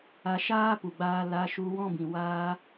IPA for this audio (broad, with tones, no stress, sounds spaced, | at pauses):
a˧ ʃ aː˦ p u˨ ɡ͡b aː˧ l a˧ ʃ u˧ w ɔ̃˦ b ĩ˨ w aː˧